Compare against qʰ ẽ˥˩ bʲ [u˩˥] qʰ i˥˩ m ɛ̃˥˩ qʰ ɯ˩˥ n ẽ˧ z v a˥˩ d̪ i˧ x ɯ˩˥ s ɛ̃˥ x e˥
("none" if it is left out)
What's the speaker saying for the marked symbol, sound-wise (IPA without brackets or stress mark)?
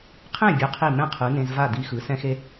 u˩˥